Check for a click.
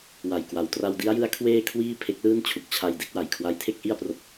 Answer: absent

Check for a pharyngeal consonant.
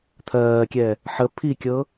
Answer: present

